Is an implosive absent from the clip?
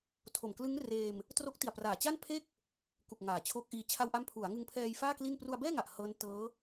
yes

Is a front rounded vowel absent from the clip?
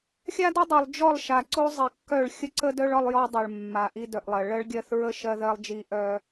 no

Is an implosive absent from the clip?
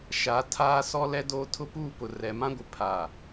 yes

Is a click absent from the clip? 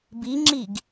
no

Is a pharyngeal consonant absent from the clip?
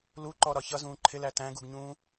yes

